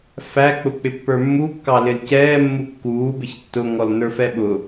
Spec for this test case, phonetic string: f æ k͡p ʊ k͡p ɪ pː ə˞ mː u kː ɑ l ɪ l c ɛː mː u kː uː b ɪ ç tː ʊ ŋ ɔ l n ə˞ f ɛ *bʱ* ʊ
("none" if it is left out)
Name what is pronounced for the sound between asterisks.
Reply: ɓ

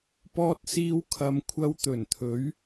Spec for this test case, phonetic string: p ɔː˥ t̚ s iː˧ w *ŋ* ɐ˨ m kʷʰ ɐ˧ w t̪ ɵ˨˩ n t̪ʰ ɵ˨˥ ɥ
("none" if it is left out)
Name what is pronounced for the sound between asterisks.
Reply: kʰ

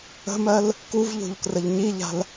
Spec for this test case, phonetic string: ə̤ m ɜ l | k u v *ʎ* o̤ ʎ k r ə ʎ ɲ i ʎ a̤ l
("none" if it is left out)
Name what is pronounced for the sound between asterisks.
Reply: ʎ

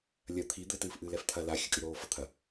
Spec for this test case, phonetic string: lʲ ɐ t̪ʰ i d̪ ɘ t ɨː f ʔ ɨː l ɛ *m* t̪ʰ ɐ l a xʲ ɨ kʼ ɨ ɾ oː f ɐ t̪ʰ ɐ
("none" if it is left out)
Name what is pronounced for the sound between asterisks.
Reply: f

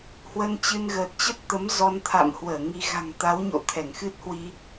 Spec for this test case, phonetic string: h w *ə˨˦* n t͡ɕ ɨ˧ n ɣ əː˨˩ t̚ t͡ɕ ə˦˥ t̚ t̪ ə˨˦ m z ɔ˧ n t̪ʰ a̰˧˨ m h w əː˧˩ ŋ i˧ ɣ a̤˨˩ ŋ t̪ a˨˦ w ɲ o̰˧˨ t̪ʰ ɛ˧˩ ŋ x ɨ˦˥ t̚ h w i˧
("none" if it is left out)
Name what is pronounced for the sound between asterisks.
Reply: ə˧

